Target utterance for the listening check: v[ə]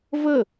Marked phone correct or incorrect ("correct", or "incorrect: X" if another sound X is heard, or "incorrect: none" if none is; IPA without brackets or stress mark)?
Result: correct